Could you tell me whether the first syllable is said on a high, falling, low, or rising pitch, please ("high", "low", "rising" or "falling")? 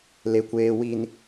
low